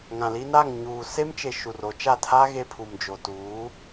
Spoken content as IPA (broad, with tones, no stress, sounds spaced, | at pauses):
ŋ ã˨ l i˦ n a˦˨ ŋ ɲ uː˨ s e˦ m t͡ʃ e˨ ʃ u˨ r o˨˦ t͡ʃ a˦˨ tʰ a˦ ɣ e˦ pʰ u˨ m d͡ʒ o˨ t uː˨˦